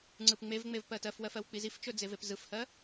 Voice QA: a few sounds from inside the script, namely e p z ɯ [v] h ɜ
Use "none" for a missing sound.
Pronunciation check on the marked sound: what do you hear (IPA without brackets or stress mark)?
f